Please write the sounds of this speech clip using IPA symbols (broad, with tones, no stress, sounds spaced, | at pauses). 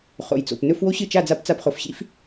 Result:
χ o̰˨ j t͡s o̰˨ p n ɵ˦ f w o˦ ɕ ɨ˦˨ t͡ʃ a˦˨ d͡z a˦ p t͡s a˦ p χ o˨ f ɕ ḭ˦ f